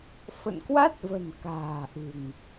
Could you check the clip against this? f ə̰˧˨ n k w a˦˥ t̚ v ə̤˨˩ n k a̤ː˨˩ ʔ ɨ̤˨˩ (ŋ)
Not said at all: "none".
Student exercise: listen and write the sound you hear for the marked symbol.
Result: ŋ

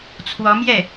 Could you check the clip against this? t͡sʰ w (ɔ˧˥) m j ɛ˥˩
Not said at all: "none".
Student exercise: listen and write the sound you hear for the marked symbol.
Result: ɔ˧˥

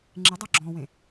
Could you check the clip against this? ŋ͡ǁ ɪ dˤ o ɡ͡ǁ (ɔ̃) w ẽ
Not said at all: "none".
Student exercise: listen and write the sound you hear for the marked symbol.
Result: ɔ̃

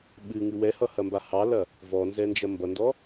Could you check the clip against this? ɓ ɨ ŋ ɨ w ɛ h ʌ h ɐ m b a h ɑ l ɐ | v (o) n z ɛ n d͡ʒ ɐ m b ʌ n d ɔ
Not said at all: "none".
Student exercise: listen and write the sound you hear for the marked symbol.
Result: ɔ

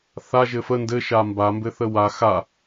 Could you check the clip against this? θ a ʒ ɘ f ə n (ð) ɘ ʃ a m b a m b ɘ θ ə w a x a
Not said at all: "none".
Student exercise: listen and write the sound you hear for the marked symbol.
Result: d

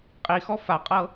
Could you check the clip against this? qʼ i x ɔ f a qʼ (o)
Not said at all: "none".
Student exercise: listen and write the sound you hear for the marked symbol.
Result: ɤ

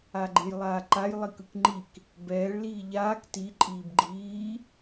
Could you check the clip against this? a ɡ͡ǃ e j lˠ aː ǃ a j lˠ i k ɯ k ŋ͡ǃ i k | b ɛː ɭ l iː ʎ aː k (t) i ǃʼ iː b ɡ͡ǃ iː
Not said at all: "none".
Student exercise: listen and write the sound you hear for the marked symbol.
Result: t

